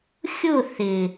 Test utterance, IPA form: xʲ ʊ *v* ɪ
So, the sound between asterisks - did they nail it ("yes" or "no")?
no